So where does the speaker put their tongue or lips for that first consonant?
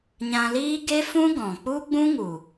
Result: palate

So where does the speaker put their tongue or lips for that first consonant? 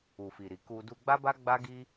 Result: lips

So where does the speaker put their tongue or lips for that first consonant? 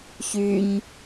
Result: palate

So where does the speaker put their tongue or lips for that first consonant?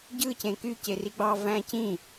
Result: palate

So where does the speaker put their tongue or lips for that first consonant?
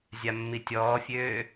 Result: tongue tip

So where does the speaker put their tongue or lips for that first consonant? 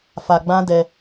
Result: lips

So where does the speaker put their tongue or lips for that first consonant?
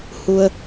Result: throat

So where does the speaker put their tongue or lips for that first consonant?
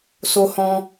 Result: tongue tip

